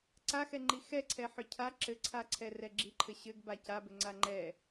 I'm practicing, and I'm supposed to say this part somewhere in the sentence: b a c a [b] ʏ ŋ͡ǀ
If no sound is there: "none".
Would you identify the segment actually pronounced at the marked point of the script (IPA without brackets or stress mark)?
b